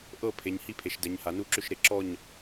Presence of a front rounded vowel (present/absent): present